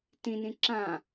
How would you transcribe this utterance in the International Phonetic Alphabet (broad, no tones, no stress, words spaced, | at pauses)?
tĩnĩ ǁã